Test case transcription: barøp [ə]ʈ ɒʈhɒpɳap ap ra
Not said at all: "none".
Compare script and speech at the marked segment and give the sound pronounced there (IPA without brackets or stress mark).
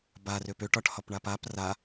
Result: ø